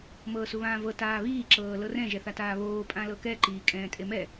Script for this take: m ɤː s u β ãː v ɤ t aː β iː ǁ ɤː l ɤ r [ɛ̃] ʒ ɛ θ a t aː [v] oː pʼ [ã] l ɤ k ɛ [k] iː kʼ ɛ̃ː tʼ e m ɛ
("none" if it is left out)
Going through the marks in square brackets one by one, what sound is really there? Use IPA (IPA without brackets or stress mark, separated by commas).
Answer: ɛ̃, β, ã, ǃ